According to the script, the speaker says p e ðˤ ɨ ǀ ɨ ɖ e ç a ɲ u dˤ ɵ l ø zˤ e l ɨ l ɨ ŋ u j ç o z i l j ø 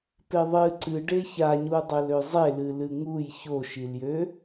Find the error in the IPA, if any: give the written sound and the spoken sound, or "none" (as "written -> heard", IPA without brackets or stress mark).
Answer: z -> ʃ